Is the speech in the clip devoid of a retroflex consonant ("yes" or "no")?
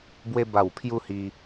yes